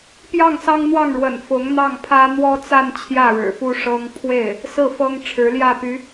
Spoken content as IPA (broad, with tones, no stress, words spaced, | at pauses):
pjɑ˥˩ŋsɑ˥ŋn̪wɑ˥˩ŋɻwə̰˨˩n fʊ˧˥ŋn̪ɑ˥˩ŋpʰä˥ n̪wɔ˥t͡sa˥˧n t͡ɕʰjä˥˩ɻɻ̩˨˩fu˥ ʂɤ˥ŋ pʰwe˥˩ɪ̯ | sɹ̩˥˩fɤ˥ŋ ʈ͡ʂʰɻ̩˧˥ljä˥˩py˧˥